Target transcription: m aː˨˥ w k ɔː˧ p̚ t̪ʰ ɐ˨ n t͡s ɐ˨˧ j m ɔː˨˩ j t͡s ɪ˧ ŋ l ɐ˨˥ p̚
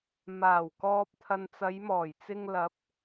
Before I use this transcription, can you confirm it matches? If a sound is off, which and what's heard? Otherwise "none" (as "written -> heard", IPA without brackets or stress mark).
aː˨˥ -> aː˨˩